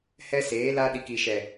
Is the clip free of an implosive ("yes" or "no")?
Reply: no